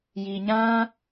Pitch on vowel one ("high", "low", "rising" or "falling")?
low